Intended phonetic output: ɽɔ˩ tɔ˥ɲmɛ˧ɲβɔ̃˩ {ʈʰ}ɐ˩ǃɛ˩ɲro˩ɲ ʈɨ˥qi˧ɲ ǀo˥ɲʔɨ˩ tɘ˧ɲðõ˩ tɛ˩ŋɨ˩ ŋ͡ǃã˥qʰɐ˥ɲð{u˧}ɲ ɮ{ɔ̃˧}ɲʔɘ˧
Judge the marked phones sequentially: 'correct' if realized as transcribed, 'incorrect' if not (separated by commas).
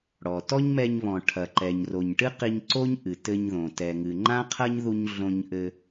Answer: correct, correct, incorrect